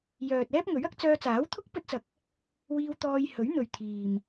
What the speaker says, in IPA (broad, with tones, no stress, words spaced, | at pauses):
jœː˨t̚ ɛː˥p̚ŋɵ˨˥ɥɐ˨˥k̚ t͡sœː˧t͡saː˨˥wt̪ʰʊ˥k̚ pɵ˥t̚t͡sɐ˧k̚ | wiː˧wt̪ɔː˧j hɵ˨˥ɥn̪ɵ˨ɥ t̪ʰiː˨m